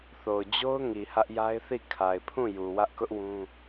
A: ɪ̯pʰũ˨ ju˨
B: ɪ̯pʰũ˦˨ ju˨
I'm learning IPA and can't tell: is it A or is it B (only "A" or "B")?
B